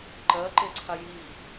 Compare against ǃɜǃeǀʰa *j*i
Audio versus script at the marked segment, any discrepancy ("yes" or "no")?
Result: no